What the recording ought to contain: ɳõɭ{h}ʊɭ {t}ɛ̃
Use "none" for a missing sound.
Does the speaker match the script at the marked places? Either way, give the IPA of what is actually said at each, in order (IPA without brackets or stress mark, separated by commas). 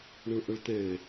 ʔ, t